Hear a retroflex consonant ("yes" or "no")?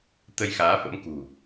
no